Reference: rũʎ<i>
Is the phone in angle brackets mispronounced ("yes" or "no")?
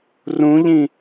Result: yes